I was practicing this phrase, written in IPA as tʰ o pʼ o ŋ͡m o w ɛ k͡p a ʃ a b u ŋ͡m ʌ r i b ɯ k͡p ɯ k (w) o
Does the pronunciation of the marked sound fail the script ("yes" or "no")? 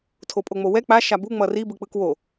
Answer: no